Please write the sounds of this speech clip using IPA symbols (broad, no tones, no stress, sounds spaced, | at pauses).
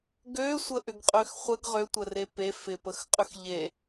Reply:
ɡ ø sʷ ə ʔ ʏ ɡ qʼ ø x χʷ ə ɡ ʁ ø tʷ ə r e p e f ɪ p ə x qʼ ʏ x ʎ e